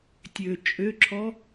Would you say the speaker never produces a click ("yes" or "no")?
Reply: no